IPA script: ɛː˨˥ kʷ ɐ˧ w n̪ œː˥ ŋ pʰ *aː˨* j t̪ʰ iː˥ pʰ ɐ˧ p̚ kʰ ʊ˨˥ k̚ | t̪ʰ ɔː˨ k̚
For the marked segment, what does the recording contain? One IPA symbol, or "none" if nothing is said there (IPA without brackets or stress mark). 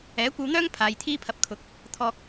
aː˨